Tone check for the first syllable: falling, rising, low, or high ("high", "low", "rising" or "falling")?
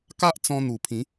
high